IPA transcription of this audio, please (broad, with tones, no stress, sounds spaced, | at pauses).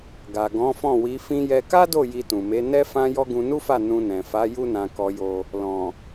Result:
ɡ a˨ ɡ ɔ̃˨˦ f ɔ̃˦˨ w i˨˦ f ĩ˧ j ɛ˧ k a˦ d o˦˨ j i˧ t ũ˨ m e˨˦ n ɛ˦ f ã˦ j ɔ˦ ɡ ũ˧ n u˦ f a˦˨ n ũ˧ n ɛ̃˨ f a˨˦ j u˦ n ã˧ k ɔ˧ j o˧ | l ɔ̃˨